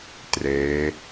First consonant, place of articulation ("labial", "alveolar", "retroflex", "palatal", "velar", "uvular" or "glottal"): alveolar